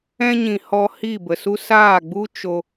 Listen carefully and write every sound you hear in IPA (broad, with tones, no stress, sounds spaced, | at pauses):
ɛ̃˧ ɲ ĩ˨ h ɔ˧ h i˦˨ b ə˨ s u˦ s aː˦˨ ɡ͡b u˦ t͡ʃ o˧